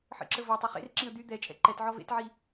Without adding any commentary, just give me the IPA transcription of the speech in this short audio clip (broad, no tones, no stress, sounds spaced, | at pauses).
ħ ə̰ ǁ ə v ɔ tˤ œ χ ḛ r ǁ ĩ ə̯ d̪ y d̪ ɛ t͡ʃʼ ɛ̰ ǃ ɛ t ʕ ɔ v ḛ t ʕ i